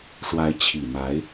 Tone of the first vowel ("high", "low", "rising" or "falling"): rising